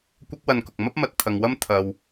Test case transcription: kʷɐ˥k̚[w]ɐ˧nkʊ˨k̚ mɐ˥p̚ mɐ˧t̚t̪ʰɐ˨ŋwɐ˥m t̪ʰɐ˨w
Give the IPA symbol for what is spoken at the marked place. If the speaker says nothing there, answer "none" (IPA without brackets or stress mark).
w